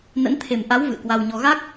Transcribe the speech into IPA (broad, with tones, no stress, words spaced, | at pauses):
nə̰˧˥nt̪ʰe˨˩m ʔa˨˦w vɨ̰˧˨ə̯kwa˧wɲɔ˧ ɣa˦˥k̚